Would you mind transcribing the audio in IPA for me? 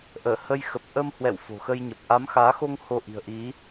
ʔ əː˧˩ h ə˧ j x ə˨˩ p̚ ʔ ə˧ m h w ɛ̰˧˨ w f o̤˨˩ x ə˧ j ɲ ə˨˩ p̚ ʔ a˨˦ m x aː˨˦ x o˧ ŋ h o˧ ʔ i̤˨˩ ə̯ ʔ i˨˦

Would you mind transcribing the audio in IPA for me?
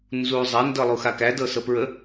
n z u zˤ æ n d ɤ lˠ u x a k æ d ɤ s ɤ p ɹ ə

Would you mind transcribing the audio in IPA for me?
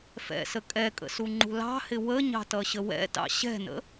f ɛ̰ s ə kʼ ɛ kʼ ə̰ s u ŋ͡ǃ ṳ l ɑ̤ h ɪ w ə ɲ ɑ̤ t ʌ ɕ ə w ɛ̰ t ɑ̰ ɕ ɛ̤ n ə̰

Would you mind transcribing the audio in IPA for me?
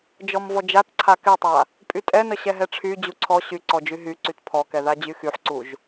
d͡ʒ ɔ m v ɔ d͡ʒ a t ǀʰ a k ɛ tˤ a | pʼ y tʼ ɛ n ə ɕ ɛ ɦ ɛ ʈ͡ʂʰ y d͡ʑ u ǀʰ ɔ ɕ y ǀ ɔ d͡ʒ y ɦ y ǀ y t pʰ ɔ k ɛ ð a d͡ʑ y x y ħ ǀ u ʒ

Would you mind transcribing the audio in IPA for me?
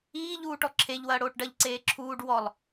iː ʎ uː ʈ ɔ ǁʰ e ʎ w ɐː ɽ oː ʈ ɖ ɐ ʎ ǀ eː ǁʰ uː ɖ w ɔ lˠ

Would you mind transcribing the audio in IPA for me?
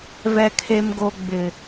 v ɛ˨ kʰ e˨ m ɡ o˨ ɡ͡b ɪ˨

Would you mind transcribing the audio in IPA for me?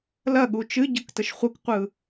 l ɐ ɠ u t͡ʃ ɨ ɟ ɯ k t ə ʃ χʷ ɯ k qʷ ɯ

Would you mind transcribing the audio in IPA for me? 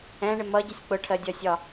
ɛ̃ ɳ ɪ m ʌ ɟ ɪ sʲ k͡p ʊ ʈʰ ɜ dʲ ɒ sʲ ɒ

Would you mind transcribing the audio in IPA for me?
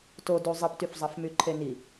t o d u zˤ i p t y f zˤ ɑ f m y ǃʰ e n i

